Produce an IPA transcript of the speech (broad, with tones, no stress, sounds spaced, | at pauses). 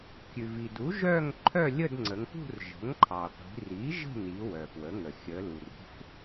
kʲ ʉ˩ v i˩ d u˩˥ ʒ œ˥˧ ŋ ǃʰ œ˥˧ lʲ ə˥˧ d ŋ͡ǀ ə˩˧ ŋ p ṳ˥˧ r ʒ ə̤˩˥ ŋ ǃʰ ɑ˩ qʷ i̤˩˧ r i˩˥ ʒ ə̤˥˧ n i˩˧ w œ˩ f w ə˩˥ ŋ ə˩ xʲ ə˩˧ l u˩ r ṳ˩˥ f